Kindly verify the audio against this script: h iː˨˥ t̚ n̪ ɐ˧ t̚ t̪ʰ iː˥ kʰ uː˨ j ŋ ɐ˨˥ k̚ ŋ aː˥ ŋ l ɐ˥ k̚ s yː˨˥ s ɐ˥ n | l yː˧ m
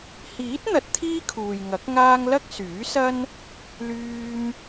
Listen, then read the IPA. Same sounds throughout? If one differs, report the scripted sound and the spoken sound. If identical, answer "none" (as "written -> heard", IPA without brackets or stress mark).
none